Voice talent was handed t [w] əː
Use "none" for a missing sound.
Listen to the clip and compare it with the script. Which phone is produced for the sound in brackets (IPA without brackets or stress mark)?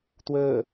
w